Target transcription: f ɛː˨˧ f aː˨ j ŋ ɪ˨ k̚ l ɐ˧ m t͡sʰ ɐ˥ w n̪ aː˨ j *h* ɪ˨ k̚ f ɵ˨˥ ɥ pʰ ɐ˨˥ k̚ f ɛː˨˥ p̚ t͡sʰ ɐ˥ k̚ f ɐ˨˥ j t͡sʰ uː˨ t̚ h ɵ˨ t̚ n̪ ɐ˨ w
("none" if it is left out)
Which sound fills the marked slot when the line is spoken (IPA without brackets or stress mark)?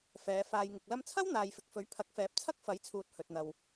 f